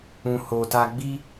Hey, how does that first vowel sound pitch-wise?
low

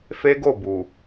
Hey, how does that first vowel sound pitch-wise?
high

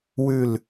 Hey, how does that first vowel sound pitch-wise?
falling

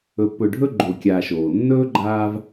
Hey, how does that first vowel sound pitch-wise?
low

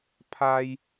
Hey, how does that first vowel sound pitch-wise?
high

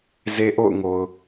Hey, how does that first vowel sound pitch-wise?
high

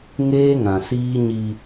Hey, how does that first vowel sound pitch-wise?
high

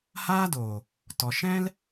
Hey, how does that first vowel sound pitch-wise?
high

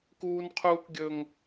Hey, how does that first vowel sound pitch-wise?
high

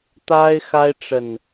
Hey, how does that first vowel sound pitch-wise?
high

